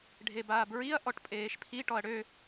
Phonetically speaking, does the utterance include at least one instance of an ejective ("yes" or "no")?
yes